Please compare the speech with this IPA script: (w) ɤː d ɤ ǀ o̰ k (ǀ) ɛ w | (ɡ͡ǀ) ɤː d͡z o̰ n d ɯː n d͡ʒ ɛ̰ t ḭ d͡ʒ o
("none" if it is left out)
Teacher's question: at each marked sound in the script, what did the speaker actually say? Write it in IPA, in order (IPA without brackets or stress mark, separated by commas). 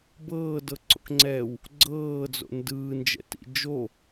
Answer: b, ŋ͡ǀ, ɡ͡ǀ